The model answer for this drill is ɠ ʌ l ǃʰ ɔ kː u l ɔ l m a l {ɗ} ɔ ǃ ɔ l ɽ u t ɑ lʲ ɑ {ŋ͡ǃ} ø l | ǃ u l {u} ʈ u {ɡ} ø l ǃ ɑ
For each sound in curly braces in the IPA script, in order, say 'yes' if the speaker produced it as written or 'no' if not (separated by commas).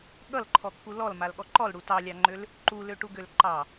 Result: no, yes, no, yes